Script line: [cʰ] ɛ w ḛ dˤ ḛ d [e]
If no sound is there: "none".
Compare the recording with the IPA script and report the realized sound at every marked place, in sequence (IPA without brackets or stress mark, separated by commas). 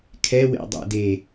kʰ, e